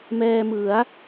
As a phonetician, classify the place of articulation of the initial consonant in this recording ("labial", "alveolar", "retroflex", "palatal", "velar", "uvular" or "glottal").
labial